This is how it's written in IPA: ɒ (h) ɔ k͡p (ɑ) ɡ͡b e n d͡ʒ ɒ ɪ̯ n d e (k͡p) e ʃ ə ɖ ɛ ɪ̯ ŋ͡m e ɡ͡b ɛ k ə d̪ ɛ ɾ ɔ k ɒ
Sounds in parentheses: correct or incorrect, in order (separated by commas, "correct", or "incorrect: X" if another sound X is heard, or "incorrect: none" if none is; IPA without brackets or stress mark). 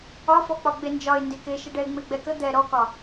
incorrect: f, incorrect: ɒ, incorrect: k